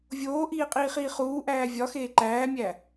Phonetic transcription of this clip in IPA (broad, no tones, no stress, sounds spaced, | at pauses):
vʲ oː ʔ iː qʼ iː χ iː χ uː ʔ æː vʲ ɒ x eː ǃ æː mʲ æ